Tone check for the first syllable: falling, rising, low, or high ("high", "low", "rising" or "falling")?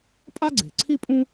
high